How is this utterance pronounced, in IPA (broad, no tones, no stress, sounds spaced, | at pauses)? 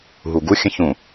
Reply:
ɦ u ɡ u xʲ ə̃ ç ũ